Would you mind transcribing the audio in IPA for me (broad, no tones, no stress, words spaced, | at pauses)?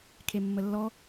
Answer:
kʰemːəlːɔ